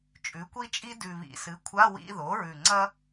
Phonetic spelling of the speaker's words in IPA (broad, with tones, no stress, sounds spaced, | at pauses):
t͡ʃʼ ʉ˩˥ kʷ i˥ t͡ʃʼ i˥ d ʉ˨˩ β ḭ˨˩ s ɨ˩˥ kʷʰ a˧˥˧ w ḭ˧˥˧ ð o˩˥ ɹ ʉ˨˩ ŋ͡ǀ ɐ˥